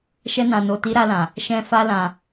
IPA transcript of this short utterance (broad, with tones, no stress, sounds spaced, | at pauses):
ʃ ɛ˧ n ã˨ n o˨ t i˨˦ ɾ a˧ l ã˨ | ʃ ɛ̃˧ f a˧ l ã˨